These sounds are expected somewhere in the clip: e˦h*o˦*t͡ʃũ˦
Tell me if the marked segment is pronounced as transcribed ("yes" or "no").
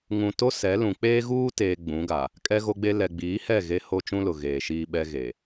yes